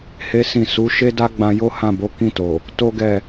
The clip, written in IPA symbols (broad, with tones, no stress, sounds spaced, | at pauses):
h e˦ s ĩ˦˨ s u˨˦ ʃ e˦ d a˦ ɡ͡b ã˧ j o˦ h ã˦˨ b o˨˦ k ĩ˦˨ t o˨ | t o˦ ɡ ɛ˦˨